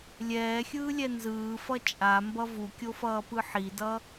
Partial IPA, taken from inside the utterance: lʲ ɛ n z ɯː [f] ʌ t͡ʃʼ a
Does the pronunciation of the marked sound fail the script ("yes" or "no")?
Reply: no